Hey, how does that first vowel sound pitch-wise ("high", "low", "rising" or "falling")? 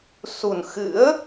low